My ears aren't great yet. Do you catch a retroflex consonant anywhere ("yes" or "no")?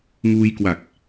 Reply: no